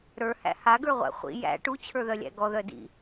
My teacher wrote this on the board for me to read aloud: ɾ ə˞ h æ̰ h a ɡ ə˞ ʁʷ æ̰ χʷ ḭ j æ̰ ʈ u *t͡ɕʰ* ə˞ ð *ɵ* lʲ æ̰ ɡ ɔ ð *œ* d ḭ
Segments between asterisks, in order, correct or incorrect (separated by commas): correct, incorrect, correct